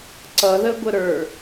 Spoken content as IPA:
ǀʌðəɡʷə ɾə˞

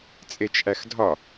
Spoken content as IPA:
t͡sʼet͡ʃʔæxdʱɒ

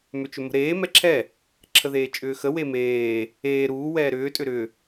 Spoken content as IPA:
mʏt͡ʃʏmə̤ɾeː mɛǁʰɛ | ǁʰəðeːt͡ʃʼʏːxə wemeː | eː ɾuː wɛːɾʏː tʼʏɾʏ

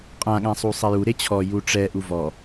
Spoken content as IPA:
qʼãɠãsˤu sˤɛju ɾet͡ɕʰɔ juʈ͡ʂɛ ʔuvɔ

